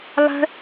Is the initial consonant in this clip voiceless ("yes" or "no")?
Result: no